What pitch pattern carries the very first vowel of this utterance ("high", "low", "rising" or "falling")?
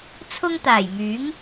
high